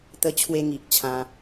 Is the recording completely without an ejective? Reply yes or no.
yes